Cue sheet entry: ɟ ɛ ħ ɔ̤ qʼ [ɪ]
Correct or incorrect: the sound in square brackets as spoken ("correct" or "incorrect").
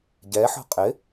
correct